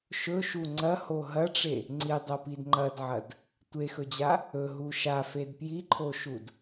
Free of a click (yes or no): no